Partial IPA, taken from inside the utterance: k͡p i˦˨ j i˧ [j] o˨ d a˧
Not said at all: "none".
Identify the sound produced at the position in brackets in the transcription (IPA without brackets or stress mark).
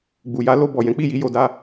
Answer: j